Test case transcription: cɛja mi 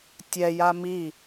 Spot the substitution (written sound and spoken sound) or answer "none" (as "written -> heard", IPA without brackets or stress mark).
c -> tʲ